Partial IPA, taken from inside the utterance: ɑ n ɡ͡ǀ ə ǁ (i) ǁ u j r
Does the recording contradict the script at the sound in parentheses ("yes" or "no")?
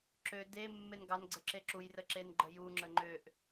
yes